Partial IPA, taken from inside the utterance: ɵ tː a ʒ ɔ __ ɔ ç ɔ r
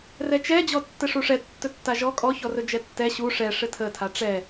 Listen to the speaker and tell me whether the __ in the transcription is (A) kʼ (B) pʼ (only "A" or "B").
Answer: A